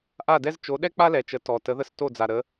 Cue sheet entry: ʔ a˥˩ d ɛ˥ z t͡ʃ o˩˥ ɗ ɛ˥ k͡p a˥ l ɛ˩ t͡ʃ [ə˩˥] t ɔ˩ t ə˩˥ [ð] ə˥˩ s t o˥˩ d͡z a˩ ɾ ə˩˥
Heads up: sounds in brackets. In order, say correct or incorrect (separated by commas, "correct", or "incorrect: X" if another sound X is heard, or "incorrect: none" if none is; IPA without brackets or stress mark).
correct, correct